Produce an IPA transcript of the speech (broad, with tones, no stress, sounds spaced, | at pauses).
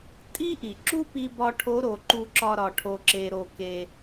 tʼ i˥ ʔ i˩ ǁ u˥ p i˧ b ɒ˧ ʈʰ o˧˥ ɾ o˩˧ ǃ u˧ ǁ ɒ˧ ɾ ɒ˩ ʈʰ o˩ ǁ e˩ ɾ o˩ k e˩